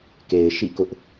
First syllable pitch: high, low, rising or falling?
low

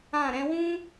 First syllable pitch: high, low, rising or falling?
falling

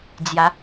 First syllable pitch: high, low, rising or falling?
rising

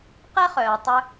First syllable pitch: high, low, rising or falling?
high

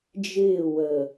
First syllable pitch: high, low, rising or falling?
falling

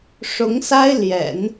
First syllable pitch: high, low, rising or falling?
rising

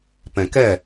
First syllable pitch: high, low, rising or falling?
low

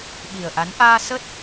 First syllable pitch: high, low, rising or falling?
low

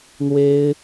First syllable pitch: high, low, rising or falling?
high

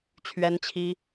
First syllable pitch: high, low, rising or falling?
high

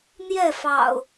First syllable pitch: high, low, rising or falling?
falling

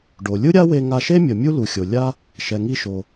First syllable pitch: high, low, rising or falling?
low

